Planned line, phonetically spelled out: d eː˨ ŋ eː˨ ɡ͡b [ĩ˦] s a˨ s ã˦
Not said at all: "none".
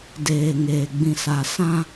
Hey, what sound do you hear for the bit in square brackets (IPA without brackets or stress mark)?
ĩ˨